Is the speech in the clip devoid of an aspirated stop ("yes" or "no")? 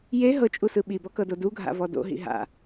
yes